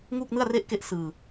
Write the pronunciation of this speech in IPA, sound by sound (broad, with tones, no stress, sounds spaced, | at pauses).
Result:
ŋ uː˥˩ k̚ n ɯ˥˩ a̯ r e˥˩ ʔ k e˥˩ ʔ s ɯː˧